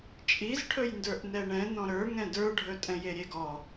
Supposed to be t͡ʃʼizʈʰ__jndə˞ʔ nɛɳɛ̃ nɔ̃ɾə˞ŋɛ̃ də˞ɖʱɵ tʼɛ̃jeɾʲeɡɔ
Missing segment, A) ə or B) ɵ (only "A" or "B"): B